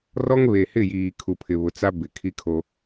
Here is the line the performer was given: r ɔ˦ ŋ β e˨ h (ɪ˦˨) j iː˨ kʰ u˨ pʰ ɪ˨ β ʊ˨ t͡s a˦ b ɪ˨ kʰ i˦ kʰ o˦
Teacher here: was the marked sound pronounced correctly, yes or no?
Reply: yes